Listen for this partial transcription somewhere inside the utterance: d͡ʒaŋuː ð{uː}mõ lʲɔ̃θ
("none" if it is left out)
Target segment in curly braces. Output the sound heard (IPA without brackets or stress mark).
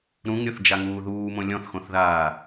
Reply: uː